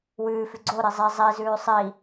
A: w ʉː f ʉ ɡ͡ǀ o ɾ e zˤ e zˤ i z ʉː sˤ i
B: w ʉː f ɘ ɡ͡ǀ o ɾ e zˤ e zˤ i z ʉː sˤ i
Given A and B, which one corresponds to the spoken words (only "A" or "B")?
A